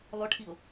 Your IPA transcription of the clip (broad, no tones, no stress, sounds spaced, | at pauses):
lˠ ɵ ʈʰ i ʊ̯